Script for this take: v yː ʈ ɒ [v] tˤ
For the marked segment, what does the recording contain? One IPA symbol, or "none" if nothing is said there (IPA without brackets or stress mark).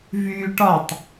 none